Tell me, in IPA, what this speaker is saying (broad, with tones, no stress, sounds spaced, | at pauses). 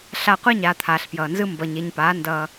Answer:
ɬ a˧ qʷ ɛ˦ ɲ aː˧ t̪ʰ aː˨ ɬ p j ʌː˨ n z ɯ˦ m b ʌ˨ ɲ e˨ ɲ p aː˨˦ n d ʌː˧